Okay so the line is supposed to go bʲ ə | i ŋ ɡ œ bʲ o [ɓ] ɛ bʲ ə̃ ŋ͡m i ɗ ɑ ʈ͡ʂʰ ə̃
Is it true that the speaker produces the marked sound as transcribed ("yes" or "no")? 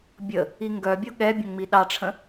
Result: no